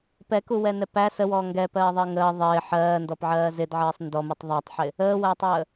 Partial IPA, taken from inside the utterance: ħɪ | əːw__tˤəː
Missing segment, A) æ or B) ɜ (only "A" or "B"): A